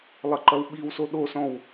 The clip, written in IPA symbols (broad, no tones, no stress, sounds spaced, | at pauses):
lˠ ɘ ǃ ɐ w ɓ i w s o ɗ o s ɔ̃ w